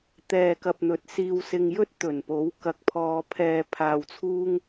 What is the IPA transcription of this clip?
t̪ɛː˨kɐ˨p̚ n̪ɵ˨˥t̚siː˧wsɪ˧ŋjɵ˥t̚ t̪ɵ˨˩npo˨˥w kɐ˨k̚pʰɔː˧pʰɛː˧ pʰaː˧wt͡sʰuː˥ŋ

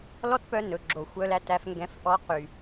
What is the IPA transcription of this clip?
lɔ˦tpœ˧ nɵ˨ɡ͡ǁo˨xʷœ˧læ˧t æ˧fŋɡɛ̃˧f ʔɔ˧qy˨

